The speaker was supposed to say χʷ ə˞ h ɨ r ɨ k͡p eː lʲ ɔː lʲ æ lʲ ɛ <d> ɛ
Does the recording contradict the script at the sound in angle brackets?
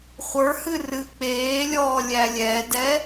no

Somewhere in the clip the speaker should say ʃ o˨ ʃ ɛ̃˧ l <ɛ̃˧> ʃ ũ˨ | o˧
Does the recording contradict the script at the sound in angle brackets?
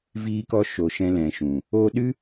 yes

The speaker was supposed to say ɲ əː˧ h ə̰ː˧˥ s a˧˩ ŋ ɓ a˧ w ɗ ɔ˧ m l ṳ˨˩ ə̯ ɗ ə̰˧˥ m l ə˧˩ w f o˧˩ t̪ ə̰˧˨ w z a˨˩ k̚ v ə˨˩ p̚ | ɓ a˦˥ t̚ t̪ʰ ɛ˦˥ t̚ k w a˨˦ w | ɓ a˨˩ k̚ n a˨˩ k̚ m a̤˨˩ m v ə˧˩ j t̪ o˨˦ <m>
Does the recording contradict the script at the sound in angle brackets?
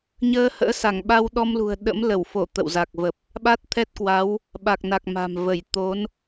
yes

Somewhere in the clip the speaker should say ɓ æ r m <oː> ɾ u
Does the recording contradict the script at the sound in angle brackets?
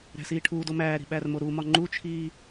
yes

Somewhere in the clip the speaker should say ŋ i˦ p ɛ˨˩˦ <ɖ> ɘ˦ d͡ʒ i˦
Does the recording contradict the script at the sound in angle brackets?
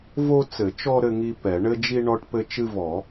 yes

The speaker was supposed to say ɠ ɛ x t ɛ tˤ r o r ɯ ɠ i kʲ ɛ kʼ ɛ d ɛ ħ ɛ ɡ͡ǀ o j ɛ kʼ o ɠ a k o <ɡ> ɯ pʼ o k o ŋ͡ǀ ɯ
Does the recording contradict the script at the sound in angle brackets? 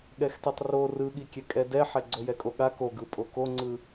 no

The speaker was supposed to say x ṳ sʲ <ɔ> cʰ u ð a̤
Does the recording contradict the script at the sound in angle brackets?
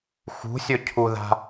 yes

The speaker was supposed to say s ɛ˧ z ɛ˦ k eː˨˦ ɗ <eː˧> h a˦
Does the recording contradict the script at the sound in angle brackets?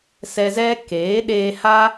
no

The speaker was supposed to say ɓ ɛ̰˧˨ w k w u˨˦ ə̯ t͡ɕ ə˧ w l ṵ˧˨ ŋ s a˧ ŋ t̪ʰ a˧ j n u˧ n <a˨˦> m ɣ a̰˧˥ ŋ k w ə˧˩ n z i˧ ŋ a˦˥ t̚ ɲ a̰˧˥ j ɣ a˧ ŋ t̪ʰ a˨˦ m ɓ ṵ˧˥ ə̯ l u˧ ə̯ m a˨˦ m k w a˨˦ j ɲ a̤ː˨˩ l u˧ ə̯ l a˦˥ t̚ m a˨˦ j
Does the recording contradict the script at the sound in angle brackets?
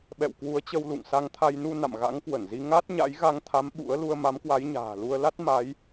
yes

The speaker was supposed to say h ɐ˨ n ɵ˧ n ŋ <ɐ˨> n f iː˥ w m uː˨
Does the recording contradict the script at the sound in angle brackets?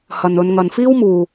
no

